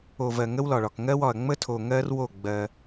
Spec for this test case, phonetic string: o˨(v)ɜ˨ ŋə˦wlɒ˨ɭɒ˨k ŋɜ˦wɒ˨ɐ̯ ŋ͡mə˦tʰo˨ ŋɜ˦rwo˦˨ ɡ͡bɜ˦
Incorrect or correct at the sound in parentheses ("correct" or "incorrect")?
correct